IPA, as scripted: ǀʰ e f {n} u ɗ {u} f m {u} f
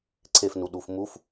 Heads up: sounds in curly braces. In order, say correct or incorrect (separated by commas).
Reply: correct, correct, correct